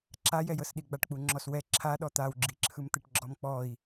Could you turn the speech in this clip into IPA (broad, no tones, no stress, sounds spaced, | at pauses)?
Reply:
ǁ a j ɛ j ɤ s ɗ i ɡ͡b a ʈ k͡p u ŋ͡ǁ ɔ s w ɛ ǁʰ a ɗ ɔ t̪ a w ɡ͡ǁ i ǁʰ ɯ m t̪ ɛ ʈ ɡ͡ǁ ɔ m k͡p ɔ i̯